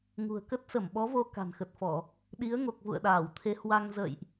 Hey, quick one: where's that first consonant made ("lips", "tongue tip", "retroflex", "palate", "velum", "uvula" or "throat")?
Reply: velum